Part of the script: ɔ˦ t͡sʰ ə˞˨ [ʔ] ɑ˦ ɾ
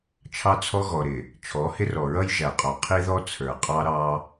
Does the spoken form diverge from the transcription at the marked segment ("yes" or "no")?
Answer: yes